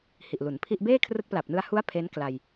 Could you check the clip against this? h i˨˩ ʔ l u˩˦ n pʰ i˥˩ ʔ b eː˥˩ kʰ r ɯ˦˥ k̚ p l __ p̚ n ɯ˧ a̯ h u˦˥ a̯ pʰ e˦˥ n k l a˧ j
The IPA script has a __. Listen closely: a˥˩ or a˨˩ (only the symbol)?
a˨˩